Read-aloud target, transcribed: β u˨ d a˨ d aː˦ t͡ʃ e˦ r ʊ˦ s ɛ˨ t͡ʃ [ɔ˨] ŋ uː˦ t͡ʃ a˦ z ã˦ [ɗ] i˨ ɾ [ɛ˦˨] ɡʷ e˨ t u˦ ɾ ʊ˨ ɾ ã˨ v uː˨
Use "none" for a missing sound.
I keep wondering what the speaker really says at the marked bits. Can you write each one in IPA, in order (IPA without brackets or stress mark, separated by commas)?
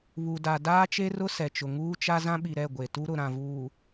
ʊ˨, ɓ, ɛ˦˨